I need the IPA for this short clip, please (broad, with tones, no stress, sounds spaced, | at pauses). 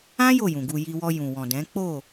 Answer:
ã˦ j o˦˨ j ũ˨ ɡ u˧ j i˧ w ɔ˧ j ũ˨ w ɔ̃˨ d ɛ̃˨˦ k͡p o˦˨